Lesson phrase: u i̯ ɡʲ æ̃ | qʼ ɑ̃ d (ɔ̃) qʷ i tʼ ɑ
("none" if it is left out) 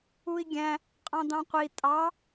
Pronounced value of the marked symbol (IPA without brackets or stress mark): ɑ̃